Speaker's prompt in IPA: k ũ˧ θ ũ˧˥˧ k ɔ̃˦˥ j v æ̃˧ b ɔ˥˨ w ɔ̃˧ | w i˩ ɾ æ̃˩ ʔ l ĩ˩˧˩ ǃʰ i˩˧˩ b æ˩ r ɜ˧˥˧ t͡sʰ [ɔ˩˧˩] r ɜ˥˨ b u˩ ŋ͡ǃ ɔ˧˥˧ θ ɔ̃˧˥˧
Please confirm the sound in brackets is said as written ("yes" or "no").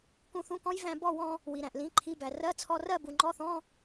no